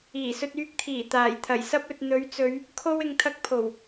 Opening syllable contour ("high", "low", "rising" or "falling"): low